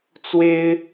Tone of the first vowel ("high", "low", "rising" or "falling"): high